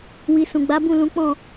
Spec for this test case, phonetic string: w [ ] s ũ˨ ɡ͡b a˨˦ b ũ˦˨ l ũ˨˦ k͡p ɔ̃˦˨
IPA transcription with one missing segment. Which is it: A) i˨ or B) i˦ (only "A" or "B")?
A